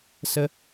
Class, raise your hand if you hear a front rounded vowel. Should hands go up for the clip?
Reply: no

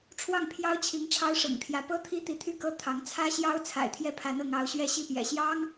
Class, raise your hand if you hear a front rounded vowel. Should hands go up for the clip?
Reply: yes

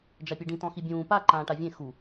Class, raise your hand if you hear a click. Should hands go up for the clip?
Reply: yes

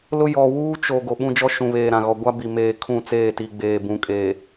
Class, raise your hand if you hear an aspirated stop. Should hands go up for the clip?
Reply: yes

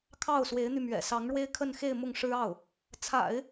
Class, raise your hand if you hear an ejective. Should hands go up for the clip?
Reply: no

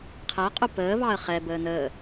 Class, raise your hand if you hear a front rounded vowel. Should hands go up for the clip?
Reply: no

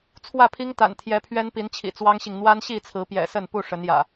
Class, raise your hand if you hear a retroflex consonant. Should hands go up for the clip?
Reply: yes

